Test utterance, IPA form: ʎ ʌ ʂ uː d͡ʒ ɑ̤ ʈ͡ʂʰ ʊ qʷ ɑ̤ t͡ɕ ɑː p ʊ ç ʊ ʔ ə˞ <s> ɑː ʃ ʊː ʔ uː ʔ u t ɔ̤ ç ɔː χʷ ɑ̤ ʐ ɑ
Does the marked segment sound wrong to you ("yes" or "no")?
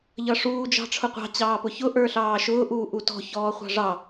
yes